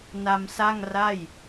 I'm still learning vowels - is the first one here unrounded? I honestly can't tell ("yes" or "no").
yes